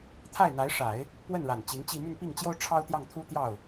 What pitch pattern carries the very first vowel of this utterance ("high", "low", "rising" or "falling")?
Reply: falling